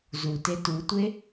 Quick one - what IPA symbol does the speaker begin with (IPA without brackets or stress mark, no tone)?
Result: z